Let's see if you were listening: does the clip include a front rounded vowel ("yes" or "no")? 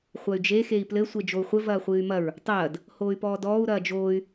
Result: yes